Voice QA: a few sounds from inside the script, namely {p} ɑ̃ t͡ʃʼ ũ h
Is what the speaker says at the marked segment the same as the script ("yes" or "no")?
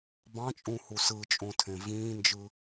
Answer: no